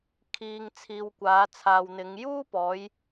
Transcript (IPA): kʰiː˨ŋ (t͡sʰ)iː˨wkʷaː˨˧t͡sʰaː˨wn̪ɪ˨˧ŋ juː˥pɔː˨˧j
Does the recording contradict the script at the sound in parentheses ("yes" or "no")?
no